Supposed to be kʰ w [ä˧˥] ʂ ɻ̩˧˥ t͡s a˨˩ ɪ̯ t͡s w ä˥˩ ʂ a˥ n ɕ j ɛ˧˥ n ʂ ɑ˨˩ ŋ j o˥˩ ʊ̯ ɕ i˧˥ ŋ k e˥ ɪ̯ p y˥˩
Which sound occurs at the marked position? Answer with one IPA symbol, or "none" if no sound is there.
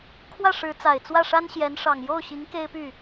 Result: ä˥˩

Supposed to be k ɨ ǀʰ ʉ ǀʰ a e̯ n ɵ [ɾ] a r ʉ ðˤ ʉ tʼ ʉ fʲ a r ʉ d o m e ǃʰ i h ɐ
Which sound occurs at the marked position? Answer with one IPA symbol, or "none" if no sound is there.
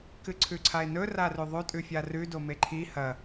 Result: r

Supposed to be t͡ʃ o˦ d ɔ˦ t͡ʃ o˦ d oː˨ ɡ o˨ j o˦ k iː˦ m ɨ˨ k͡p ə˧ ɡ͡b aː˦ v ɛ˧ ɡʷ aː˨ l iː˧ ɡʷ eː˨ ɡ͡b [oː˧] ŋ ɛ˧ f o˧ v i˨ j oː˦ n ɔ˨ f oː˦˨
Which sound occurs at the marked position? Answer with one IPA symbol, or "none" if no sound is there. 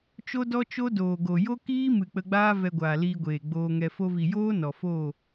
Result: oː˧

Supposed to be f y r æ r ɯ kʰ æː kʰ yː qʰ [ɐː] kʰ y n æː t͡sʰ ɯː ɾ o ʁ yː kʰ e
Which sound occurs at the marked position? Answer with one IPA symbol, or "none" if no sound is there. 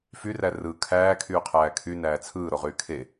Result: æː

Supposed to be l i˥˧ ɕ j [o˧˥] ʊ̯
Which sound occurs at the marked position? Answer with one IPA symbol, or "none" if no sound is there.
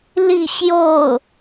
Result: o˥˩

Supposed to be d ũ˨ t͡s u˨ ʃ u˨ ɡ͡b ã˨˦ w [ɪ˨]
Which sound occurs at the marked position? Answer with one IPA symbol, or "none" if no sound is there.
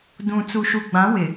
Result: ɪ˨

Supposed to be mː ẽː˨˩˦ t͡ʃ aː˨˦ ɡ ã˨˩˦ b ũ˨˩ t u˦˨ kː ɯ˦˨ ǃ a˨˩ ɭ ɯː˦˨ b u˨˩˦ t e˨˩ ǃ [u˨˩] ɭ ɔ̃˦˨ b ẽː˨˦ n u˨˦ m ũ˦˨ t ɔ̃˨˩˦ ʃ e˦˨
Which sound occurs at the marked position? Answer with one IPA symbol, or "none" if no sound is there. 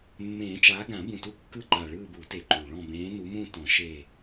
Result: u˨˩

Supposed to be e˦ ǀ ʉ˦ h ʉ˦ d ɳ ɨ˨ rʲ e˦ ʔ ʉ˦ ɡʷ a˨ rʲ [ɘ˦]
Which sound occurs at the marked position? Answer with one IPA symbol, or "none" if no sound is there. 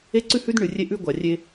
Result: e˦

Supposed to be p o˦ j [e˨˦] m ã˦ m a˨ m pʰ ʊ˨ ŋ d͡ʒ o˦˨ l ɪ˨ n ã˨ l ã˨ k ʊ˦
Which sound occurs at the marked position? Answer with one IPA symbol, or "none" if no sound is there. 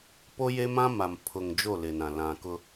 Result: e˦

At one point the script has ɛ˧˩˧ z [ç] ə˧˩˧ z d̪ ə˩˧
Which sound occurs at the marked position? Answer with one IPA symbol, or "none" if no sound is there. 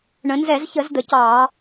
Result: ç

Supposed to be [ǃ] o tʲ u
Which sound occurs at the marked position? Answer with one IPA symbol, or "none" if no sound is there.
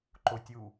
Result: ǃ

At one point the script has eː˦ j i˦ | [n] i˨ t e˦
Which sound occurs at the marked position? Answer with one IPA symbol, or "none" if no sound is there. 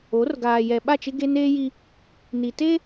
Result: n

